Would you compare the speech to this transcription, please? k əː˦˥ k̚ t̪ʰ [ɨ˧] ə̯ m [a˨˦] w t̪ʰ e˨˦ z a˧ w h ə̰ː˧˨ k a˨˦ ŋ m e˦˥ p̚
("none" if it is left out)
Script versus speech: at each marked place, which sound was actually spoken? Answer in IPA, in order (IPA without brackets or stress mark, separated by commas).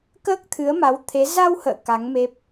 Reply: ɨ˨˦, a˨˦